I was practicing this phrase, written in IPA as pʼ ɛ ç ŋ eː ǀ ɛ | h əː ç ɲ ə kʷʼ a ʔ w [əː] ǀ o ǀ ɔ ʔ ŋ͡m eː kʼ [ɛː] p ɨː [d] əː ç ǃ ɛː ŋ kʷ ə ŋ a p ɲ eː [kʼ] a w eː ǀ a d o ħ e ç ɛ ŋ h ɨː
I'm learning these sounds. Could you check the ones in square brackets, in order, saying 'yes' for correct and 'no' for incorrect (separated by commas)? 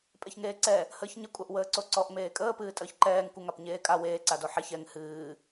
yes, no, no, yes